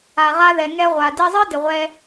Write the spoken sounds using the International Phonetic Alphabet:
a˩ ʁ a˧ ð ɛ˩ ŋ ɛ˧ ʁʷ a˩ d i˧ zˤ ɨ˥ d ɪ˩ ʁʷ ɛ˧

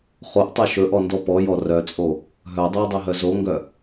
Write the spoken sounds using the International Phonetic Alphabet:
χ o ʔ tˤ œ ʃ ɵ ʔ ɔ n d ɔ p ɔ j ɔ r œ t͡sʼ o | ɦ œ dˤ o w dˤ ɛ ɦ œ z o ŋ ɡ œ

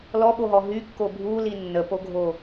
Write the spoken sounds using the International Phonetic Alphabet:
l ɔ ɓ o ɦ ɔ ɦ y kː o bʱ u l i nː ə p o ɡʱ o

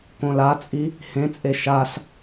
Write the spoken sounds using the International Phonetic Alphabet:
k õ l a t͡sʼ i | h ẽ t͡sʼ e ʃ a s

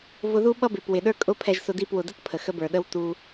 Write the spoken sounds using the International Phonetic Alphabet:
v ʊ˧ ð u˦ ɓ ʌ˦ b ɪ˨ p w ɪ˨ ɗ ə˞˦ kʼ ʊ˦ pʰ ɛ˧ ʒ s ʊ˧ d i˦˨ p w ʊ˨ d ə˦ t pʰ ə˨ x ə˦ b ə˞˨ ɗ ə˦ w t u˧

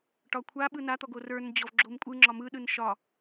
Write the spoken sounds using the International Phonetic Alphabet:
ʈ ɒ kʷʰ a ɓ ɯ n a t̪ ɔ ɡ o r ə˞ n d͡ʑ ɔ v ɡ͡ǁ o m kʷʼ ɯ ŋ͡ǁ ɒ m ɯ ɗ ɯ n ʃ ɒ

